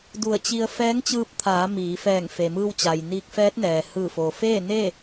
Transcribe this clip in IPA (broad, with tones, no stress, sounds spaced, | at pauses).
d u˧˩ ə̯ t͡ɕ i˧ ə̯ f ɛː˧˥ ŋ t͡ɕ ɯː˧ p̚ t̪ʰ aː˩˧ m iː˩˧ f ɛː˧˩ ŋ f e˩ m ɯː˧ w t͡ɕ a˩ j n iː˧ k̚ f ɛː˧˥ t̚ n ɛː˩ h ɯː˧˩ f oː˩ f eː˥˨ n e˥˨